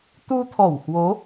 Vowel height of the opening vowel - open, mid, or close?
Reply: close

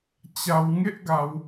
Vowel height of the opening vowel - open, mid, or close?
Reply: open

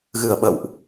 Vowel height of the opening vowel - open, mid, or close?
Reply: close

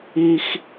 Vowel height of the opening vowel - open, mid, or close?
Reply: close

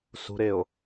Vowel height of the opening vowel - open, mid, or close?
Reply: close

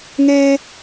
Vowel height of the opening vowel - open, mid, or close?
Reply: mid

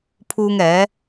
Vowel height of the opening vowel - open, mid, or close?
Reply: close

